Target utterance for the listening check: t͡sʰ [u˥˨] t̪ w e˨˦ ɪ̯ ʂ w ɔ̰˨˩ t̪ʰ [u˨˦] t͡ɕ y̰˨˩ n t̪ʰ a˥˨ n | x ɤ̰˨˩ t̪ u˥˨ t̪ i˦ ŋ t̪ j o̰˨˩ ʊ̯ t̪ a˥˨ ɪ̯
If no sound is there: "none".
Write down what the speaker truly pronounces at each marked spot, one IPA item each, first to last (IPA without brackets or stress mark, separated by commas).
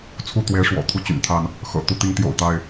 u˥˨, u˥˨